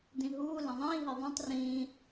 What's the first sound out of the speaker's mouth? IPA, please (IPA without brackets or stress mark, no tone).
d